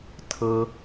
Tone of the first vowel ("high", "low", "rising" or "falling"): low